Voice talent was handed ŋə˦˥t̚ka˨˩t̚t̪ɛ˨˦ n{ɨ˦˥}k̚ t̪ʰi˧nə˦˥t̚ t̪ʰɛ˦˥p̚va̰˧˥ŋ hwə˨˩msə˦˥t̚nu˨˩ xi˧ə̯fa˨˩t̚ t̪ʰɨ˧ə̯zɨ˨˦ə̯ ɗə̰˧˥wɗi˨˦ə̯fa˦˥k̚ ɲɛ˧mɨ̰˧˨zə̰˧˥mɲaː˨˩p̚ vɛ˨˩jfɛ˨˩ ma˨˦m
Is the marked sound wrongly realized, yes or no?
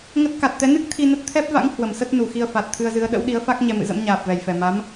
no